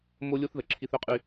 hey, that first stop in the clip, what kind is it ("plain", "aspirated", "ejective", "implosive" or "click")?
click